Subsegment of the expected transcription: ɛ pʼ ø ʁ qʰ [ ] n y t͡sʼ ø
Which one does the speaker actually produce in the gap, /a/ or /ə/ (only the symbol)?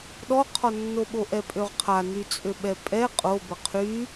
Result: a